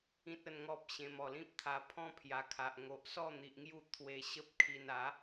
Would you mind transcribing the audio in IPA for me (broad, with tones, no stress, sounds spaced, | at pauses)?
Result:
ĩ˦ t̚ ə˥˧ n ŋ ɔ˦ p̚ ɕ ẽ˧ m ɔ˨˩ l ĩ˦ p̚ t̪ʰ a˧ pʰ ɔ̃˦ pʰ j a˨˩ kʰ a˨ ʔ ŋ o˨ ʔ s ɔ˥˧ n̪ i˨ ʔ ŋ j u˥˧ t̪ʰ w e˧ ɕ ə˦ p̚ kʰ i˧ n a˨˦